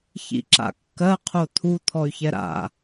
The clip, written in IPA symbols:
ç ḭ ǁ a̰ kː ɜ qʰ o t̪ʰ u t̪ʰ ɔ y̯ ç ɛ ɾ a̰

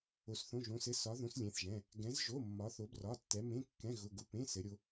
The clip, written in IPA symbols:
o˧˥ s θ õ˧˥˧ ʒ õ˧˥ s ɘ˧˥˧ s ɒ˧˥ ð õ˧˥ s lʲ ẽ˧˥˧ θ ʒ ɛ̃˧˥˧ | ɡ ɛ̃˧˥ z ʒ o˧˥˧ mː ɒ˧˥ θ o˧˥ b r ɒ˧˥˧ tː ɛ˧˥ m ẽ˧˥˧ kː ɛ̃˧˥˧ ɣ ʊ˧˥˧ ɡ ʊ˧˥˧ p ẽ˧˥˧ s ɘ˧˥ ɾʲ o˧˥

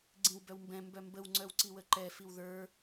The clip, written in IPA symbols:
ɡ͡ǀ ĩ w b œ w m b ɛ̃ m b œ m b ə w ŋ͡ǀ œ w ǀ i w ə ǃ ɛ f i w ð ə˞

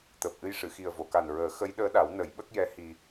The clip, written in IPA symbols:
t̪ əː˨˩ p̚ ʔ ɨ˧ j ʂ ɨ˨˩˨ x i˨˩ ə̯ v o˨˩˨ k a˨˩ n ɹ əː˨˩˦ x ə˧˥ j ɗ əː˧˥ ɗ a˨˩˦ w n ə˨˩˦ j ɓ ə˦˥ k̚ j ɛ˧˥ h i˧

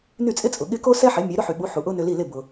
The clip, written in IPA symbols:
n y˥˩ t͡sʼ ɪ˥ t͡sʼ ʊ˩ ɠ ɪ˥ k o˥ s ɛ˥ ħ ɪ˩˥ mʲ ɛ˩˥ ɾ ʊ˥ ħ y˩ ɓ u˩˥ ħ u˩ ʔ ʊ˥ n ʏ˧ l i˥˩ l ɪ˥˩ b ʊ˩

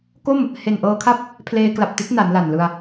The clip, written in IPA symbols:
k o˥˩ m | h e˨˩ n ʔ ɤː˧ kʰ a˥˩ p̚ | pʰ l eː˧ k l a˨˩ p̚ t i˦˥ t̚ n a˩˦ n l a˨˩ n l ɯ˧ a̯

